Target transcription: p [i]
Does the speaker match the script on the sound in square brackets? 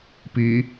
yes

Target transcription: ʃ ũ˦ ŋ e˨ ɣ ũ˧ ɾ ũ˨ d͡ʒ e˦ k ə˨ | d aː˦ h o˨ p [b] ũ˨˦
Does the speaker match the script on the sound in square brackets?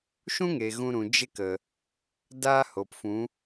no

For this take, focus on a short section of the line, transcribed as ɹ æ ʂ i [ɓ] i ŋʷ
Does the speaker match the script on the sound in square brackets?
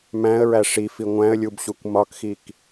no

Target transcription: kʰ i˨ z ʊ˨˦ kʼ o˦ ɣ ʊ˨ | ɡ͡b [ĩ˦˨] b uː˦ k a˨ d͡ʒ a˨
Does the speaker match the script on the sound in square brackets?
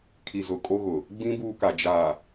no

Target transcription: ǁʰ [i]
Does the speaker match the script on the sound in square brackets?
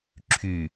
no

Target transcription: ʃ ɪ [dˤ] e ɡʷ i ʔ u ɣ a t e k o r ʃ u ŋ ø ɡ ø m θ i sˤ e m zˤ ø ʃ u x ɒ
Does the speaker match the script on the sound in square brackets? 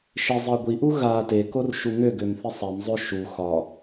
no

